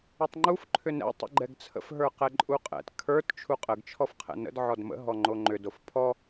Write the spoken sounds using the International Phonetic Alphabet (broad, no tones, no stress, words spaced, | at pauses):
ətˤŋ͡ǃuf ǃʰʏnɛ̰ tˤə̰ɡ͡ǃɛɡt͡sʰə̰f ɦə˞qɛǃʼuqʼɛ̰t kʰə˞t t͡ʃʰuqʼəɡ t͡ʃʰɔfqʰɛ̰nə̰d ʕɔdmə̰ ɦɔŋ͡ǃoŋ͡ǃʏd ofpʰɔ